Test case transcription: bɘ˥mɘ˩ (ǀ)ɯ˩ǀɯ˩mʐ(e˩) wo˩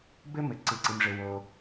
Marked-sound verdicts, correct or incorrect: correct, incorrect

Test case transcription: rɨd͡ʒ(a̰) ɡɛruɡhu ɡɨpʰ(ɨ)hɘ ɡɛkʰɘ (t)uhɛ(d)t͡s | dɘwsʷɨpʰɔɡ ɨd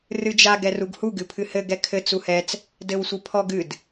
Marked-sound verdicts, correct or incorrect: incorrect, correct, incorrect, incorrect

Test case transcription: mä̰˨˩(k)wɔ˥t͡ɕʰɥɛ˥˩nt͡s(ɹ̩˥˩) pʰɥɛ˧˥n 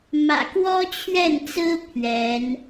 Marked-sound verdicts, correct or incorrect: correct, incorrect

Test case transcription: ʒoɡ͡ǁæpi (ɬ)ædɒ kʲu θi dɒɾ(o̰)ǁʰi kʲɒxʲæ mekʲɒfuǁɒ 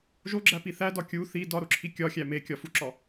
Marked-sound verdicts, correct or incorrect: incorrect, incorrect

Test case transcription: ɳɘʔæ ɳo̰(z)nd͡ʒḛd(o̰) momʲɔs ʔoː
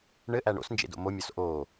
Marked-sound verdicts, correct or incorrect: incorrect, correct

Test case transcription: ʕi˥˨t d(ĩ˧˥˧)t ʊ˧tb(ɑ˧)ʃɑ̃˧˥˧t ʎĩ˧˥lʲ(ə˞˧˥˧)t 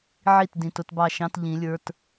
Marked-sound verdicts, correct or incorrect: incorrect, correct, correct

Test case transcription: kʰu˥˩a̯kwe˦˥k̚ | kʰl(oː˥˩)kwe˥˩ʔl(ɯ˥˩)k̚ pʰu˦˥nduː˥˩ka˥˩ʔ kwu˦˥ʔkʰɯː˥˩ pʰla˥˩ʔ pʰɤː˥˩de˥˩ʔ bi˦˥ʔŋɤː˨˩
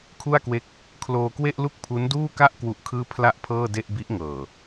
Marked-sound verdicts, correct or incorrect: incorrect, incorrect

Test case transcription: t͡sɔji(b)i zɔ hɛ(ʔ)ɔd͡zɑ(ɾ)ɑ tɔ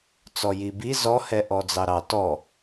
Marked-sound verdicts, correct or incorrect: correct, correct, correct

